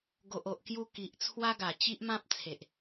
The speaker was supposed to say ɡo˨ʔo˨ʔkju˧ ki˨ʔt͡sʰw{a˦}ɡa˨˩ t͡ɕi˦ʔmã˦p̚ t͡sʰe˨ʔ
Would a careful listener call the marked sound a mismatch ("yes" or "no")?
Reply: no